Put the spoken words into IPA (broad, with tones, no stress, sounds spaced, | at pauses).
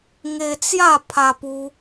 ŋ e˧ t͡s j a˥˧ pʰ a˧ p u˧